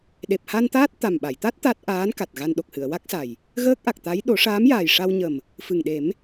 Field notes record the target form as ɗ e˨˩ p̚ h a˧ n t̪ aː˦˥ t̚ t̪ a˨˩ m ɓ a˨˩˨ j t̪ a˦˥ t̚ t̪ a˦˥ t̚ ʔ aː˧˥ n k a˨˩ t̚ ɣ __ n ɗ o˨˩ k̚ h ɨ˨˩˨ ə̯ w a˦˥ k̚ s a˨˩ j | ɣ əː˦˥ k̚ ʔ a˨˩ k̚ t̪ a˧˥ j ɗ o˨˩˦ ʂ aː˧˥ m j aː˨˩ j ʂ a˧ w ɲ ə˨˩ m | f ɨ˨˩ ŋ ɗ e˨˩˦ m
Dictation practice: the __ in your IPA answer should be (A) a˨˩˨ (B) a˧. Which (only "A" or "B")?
B